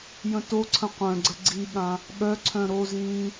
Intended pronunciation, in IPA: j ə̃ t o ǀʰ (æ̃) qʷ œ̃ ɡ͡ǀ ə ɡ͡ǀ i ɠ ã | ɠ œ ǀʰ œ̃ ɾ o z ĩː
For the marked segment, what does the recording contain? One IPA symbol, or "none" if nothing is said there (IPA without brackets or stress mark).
ə̃